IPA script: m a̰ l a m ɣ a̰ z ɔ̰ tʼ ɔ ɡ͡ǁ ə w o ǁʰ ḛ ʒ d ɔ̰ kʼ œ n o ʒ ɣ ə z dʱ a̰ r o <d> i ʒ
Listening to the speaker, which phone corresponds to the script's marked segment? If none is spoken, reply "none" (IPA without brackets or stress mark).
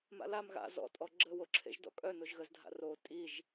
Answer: tʼ